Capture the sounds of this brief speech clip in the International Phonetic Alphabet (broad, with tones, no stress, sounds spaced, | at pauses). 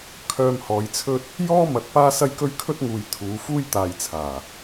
kʰ œː˧ m h ɔː˨˧ j t͡sʰ ɵ˥ t̚ | j ɔː˥ m ɐ˨˥ t̚ p aː˥ s ɐ˥ j k ɵ˥ ɥ kʰ ɵ˥ t̚ ŋ uː˨ j t̪ʰ uː˨˧ f uː˥ j t̪ aː˨ j t͡sʰ aː˨˩